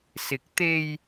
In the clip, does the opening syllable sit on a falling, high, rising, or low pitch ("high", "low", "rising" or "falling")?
rising